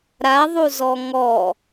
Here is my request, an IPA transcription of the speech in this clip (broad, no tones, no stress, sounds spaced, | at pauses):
ɾ a ðˤ u z ɔ ŋ ɔ